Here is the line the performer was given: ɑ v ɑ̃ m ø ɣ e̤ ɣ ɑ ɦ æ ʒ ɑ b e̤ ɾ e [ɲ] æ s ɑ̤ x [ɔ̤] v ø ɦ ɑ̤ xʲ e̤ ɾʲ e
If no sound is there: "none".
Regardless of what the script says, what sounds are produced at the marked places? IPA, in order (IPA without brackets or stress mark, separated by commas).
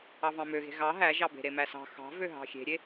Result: m, ɑ̤